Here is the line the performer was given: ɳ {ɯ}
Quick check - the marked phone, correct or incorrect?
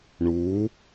incorrect